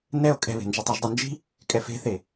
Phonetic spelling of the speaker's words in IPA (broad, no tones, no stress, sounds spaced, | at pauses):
n ɛ o̯ kʼ ɛ̤ β e̤ n d͡ʒ ɐ tˤ ɐ ʒ dˤ ɐ n d͡ʒ i̤ | kʼ ɛ f e̤ θ e